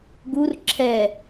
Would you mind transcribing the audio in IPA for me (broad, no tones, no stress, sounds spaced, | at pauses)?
ɡ u r ǁʰ ɛ